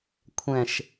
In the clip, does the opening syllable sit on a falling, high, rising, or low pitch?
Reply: falling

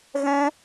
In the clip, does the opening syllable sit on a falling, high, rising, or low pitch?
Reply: high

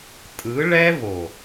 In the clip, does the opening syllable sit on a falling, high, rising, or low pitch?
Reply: rising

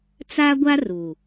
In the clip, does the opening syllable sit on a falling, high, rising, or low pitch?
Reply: high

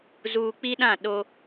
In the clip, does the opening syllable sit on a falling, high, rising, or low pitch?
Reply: low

